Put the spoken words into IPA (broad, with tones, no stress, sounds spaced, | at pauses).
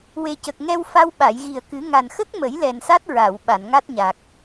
w e˨˩ c ə˨˩ k̚ ŋ ɛ˧ w f a˧ w ɓ a˨˩˨ j ɣ i˨˩ ə̯ k ɨ˨˩˦ ŋ a˨˩ n x ə˦˥ k̚ m ə˨˩˦ j l ɛ˨˩ n s a˦˥ t̚ ɹ a˨˩˨ w ɓ a˨˩˨ n ŋ a˦˥ t̚ ɲ a˨˩ k̚